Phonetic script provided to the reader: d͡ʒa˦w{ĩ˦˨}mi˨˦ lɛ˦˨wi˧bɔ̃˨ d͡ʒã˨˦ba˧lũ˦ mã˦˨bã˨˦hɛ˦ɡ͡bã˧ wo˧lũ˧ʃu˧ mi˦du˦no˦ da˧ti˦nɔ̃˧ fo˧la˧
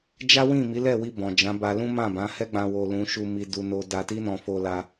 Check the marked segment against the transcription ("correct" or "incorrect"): correct